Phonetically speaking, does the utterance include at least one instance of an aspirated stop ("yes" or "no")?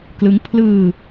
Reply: yes